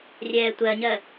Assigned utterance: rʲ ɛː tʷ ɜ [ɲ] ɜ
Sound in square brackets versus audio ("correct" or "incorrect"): correct